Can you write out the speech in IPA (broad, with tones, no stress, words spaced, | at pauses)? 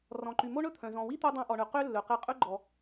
rɔ̃˩ǃy˩mo˥ ɳɵ˥t̪ʰœ̃˩ zɔ̃˩wi˥t̪o˧ dˤɑ̃˧ʔɔ˩ɳɵ˩ qø˥lːɵ˩qɛ˧ qʼɵ˥ɡ͡ǃɔ˩